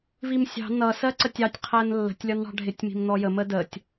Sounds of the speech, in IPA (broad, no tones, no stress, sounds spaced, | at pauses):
v i m sʲ ɑ̤ n ʌ s ɜ ǀ ə tʲ ɑ tʲ qʰ ɜ n lː ə̤ tʲ lʲ ɒ n ɳ ɑ̤ ɖʱ ɪ tʲ m i̤ m n ɔ j ə m ə d ə tʲ